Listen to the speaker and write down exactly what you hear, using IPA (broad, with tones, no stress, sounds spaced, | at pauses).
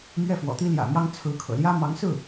m ɥ ɛ˥˩ f w ɔ̰˨˩ t̪ i˥ l j ä̰˨˩ m j ɑ˥ ŋ t͡sʰ ɹ̩˧˥ kʰ ɤ̰˨˩ l j ä˥ m ɑ˧˥ ŋ s ɹ̩˥˩